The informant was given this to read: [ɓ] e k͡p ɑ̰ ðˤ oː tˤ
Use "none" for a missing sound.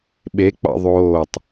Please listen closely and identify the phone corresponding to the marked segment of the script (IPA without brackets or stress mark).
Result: ɓ